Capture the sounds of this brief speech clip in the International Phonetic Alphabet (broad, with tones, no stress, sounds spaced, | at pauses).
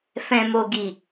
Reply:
f ɛ̃˨ m o˨ ɡ i˨